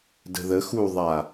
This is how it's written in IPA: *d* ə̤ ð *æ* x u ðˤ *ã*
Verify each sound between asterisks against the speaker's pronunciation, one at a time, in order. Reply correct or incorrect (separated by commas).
correct, incorrect, incorrect